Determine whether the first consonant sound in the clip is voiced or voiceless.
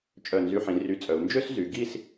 voiceless